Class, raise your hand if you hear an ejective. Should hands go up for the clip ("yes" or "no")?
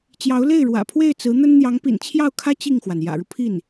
no